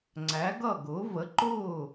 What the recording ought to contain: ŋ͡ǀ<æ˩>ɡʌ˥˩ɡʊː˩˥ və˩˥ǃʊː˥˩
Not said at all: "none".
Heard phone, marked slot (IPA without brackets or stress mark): æ˩˥